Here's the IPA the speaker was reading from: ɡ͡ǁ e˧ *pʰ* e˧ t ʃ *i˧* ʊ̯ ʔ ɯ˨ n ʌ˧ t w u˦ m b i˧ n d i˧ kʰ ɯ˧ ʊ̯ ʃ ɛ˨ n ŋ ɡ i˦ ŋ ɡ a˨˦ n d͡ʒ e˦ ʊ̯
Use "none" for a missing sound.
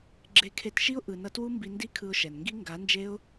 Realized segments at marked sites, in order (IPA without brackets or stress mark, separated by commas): kʰ, i˦